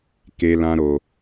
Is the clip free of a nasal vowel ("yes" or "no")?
no